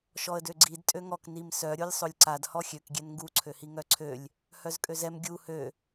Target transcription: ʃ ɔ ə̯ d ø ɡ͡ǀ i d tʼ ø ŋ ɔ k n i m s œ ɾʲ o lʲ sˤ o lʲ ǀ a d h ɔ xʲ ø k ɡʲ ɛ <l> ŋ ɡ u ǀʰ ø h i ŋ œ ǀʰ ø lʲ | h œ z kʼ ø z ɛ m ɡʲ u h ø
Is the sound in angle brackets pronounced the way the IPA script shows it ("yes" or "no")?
no